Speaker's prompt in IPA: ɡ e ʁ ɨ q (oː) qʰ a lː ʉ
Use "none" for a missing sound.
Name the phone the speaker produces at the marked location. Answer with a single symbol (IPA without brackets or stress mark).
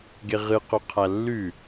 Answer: o